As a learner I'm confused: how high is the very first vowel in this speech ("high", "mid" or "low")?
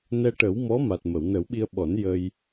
mid